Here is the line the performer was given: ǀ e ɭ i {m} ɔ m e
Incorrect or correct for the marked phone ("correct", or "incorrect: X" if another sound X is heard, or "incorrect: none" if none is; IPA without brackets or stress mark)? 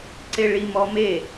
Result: correct